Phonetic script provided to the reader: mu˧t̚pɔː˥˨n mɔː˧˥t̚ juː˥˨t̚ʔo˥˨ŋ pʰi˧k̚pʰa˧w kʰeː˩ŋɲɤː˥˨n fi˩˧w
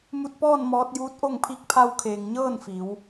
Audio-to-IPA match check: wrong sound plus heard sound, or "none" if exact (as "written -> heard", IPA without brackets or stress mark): uː˥˨ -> uː˧˥